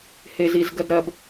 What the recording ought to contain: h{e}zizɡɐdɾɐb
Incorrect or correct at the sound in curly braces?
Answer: correct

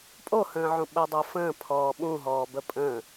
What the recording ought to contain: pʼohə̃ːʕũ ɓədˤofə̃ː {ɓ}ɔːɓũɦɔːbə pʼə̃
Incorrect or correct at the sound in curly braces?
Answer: incorrect: pʰ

